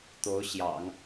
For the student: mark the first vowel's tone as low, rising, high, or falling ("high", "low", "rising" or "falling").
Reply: rising